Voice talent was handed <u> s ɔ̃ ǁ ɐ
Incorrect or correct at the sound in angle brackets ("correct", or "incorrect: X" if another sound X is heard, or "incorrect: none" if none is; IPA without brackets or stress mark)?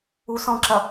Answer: correct